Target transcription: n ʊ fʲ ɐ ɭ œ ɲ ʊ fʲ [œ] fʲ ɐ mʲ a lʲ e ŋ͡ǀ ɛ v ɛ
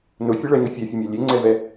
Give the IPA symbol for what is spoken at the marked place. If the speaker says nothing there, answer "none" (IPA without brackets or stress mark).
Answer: ɛ